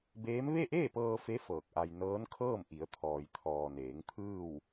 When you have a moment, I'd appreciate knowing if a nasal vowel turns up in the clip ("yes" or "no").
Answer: no